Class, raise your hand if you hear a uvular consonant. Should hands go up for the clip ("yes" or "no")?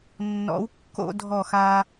no